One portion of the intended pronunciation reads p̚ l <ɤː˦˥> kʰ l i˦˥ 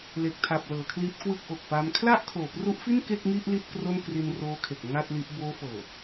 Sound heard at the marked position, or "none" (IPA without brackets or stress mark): ɤː˩˦